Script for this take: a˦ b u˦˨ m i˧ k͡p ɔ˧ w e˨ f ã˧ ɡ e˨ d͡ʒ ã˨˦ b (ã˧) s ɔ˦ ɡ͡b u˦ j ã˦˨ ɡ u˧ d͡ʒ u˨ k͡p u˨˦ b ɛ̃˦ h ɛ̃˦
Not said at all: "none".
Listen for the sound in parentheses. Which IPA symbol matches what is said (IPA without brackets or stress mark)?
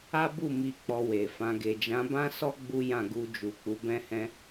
ã˦